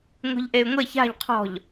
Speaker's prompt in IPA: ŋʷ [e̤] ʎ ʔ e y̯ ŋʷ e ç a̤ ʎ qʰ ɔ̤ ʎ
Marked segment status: incorrect: i̤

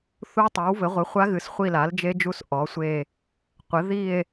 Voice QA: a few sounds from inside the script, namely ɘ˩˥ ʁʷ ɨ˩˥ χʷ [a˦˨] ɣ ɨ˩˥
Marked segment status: incorrect: a˦˥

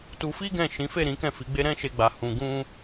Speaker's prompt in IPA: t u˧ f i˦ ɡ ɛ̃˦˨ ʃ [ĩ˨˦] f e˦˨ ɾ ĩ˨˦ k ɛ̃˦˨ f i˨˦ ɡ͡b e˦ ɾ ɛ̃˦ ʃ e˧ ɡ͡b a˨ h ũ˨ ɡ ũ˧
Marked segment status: correct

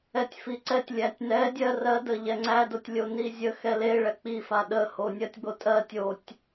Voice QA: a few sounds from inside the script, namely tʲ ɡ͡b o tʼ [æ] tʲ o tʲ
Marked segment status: incorrect: ɜ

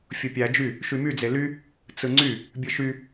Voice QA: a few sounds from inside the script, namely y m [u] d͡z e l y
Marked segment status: incorrect: y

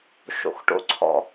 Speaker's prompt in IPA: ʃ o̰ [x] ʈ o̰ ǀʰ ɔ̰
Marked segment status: correct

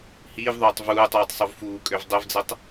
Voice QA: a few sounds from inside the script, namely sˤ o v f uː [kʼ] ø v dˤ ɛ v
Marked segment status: correct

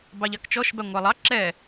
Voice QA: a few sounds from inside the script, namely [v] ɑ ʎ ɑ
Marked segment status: incorrect: b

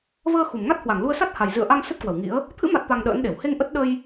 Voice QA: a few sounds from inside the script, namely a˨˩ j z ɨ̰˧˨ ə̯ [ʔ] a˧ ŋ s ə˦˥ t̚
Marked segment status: correct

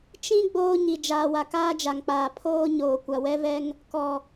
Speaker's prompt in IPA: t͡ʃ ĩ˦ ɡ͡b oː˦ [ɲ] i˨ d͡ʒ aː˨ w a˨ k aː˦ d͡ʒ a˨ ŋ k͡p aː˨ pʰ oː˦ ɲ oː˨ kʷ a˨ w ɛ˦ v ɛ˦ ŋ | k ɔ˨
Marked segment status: correct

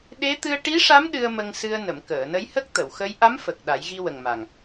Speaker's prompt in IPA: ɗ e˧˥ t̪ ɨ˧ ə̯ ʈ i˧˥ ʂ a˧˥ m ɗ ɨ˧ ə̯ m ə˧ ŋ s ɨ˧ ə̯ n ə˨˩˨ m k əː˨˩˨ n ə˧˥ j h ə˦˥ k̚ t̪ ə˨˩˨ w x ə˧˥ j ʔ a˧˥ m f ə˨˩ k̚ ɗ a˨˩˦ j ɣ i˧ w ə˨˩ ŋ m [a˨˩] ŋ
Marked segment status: correct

